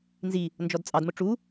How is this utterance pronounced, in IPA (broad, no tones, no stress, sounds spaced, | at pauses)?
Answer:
n z i | n d͡ʒ ɔ d t͡sʼ ɑ d m ʊ ʈ͡ʂ u